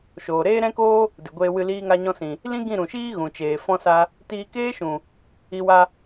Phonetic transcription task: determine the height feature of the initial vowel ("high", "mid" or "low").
mid